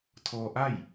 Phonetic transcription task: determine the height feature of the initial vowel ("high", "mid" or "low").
mid